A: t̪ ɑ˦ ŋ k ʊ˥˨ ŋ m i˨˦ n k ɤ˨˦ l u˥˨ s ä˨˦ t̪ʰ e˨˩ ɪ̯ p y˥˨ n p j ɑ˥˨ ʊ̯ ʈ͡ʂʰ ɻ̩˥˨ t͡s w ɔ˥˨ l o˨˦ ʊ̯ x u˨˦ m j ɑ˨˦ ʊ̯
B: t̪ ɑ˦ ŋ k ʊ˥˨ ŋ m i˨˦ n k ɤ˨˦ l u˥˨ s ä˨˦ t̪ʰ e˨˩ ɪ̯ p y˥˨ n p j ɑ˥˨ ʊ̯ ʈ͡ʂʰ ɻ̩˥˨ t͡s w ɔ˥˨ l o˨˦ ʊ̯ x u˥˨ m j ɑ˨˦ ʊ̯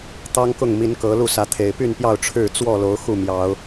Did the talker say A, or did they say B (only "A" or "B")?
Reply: B